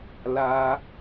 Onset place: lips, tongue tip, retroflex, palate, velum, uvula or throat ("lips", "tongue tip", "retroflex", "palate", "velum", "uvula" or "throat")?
tongue tip